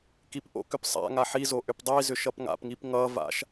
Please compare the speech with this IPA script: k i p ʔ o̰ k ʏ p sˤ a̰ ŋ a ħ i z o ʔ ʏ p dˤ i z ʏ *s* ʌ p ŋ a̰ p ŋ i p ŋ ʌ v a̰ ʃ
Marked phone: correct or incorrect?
incorrect